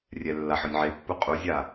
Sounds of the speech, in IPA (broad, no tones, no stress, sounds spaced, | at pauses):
rʲ ɛ lː a ħ ɔ nʲ ʕ e pː u qʼ u zʲ a